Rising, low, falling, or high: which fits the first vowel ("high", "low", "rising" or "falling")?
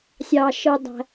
low